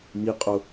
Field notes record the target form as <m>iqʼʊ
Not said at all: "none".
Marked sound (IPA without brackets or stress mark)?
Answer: m